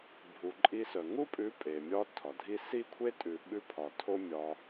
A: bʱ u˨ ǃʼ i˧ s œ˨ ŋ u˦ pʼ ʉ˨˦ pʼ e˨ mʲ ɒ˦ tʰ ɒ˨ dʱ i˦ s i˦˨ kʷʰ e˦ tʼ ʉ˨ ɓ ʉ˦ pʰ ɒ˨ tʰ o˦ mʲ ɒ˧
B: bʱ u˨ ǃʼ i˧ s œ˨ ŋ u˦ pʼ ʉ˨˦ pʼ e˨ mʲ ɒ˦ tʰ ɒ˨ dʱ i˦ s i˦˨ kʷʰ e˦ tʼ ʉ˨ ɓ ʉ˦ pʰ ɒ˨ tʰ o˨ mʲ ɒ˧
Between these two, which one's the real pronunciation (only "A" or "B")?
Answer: A